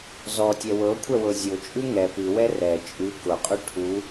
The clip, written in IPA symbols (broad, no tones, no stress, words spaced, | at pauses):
zɔtʲɛ wɤkʷʰɛwɤ zʲʊt͡ʃʼʉ ŋɛ pʉwɛ rɛ t͡ʃʼʉ kʊqʼʉ ʈʰu